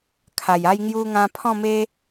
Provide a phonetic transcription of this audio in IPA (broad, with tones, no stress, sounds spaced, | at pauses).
kʰ a˨˩ j a˦ j ŋ j u˧ ŋ ã˧ pʰ ɔ̃˥˧ m e˦